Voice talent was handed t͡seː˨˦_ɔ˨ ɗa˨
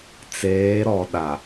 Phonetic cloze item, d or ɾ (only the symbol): ɾ